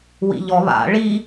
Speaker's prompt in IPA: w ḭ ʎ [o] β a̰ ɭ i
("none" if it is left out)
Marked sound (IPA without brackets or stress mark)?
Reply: ɔ